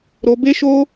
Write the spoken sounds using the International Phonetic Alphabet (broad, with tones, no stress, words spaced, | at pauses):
ɾo˧ be˦ʃo˦